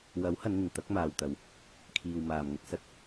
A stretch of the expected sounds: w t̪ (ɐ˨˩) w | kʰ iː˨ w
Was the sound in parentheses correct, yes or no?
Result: no